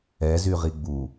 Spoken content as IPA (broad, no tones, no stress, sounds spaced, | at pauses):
ɛ z y ʁ i ɡ͡b u